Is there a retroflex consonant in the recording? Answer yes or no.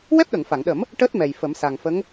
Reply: yes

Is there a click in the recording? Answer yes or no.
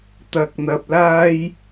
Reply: no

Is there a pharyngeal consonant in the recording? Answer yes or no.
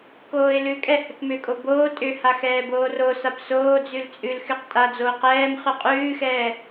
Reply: no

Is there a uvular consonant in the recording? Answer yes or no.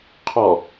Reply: yes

